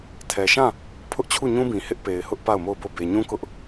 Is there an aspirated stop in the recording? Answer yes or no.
yes